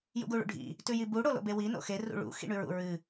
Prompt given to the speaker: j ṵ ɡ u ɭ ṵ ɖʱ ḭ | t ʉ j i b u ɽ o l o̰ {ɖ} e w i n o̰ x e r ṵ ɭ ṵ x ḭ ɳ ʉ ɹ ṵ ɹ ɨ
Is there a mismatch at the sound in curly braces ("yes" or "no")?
yes